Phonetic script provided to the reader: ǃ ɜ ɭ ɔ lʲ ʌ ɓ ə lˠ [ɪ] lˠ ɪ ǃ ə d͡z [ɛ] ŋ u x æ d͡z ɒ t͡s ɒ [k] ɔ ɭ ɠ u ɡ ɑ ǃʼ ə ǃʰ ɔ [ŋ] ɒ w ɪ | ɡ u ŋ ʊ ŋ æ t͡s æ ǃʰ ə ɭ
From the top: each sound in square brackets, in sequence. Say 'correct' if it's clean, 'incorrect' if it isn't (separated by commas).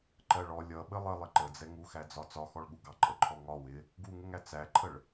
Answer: incorrect, correct, incorrect, correct